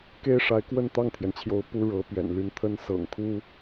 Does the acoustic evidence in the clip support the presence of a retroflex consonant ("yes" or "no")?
yes